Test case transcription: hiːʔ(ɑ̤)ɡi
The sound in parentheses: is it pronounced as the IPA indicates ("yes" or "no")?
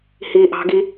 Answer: yes